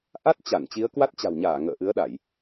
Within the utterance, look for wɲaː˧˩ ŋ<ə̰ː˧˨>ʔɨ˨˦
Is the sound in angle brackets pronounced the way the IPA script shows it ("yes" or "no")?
yes